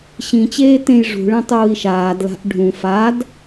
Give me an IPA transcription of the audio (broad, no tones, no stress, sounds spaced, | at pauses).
ɕ ĩ t͡ɕ eː t ẽ j ʐ ṳ ɭ ẽ tˤ uː i̯ ʃ aː d l a̤ ʔ ɖʱ ũ f a d